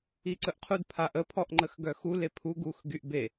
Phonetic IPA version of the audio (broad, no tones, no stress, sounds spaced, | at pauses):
i ǀ ə ʔ qʰ u d pʰ a ʔ ə pʰ ɔ ʔ ŋ͡ǃ ə x ɡ œ x u l e pʰ u ɡ u x ɡ y ʔ b e